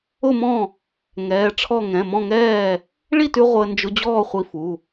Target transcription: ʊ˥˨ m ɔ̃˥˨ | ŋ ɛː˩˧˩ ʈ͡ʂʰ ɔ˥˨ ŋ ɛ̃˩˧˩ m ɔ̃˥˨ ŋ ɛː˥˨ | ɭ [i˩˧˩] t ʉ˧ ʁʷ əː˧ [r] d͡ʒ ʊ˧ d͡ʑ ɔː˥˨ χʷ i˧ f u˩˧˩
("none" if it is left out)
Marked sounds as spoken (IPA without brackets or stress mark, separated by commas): i˥˨, n